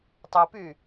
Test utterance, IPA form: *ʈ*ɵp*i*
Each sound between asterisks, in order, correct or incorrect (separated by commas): incorrect, incorrect